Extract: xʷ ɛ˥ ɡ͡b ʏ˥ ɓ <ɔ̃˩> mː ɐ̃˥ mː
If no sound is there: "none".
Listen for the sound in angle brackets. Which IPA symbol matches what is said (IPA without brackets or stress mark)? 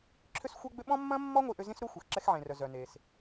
ɔ̃˥